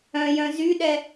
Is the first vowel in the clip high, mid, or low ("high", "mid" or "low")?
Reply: mid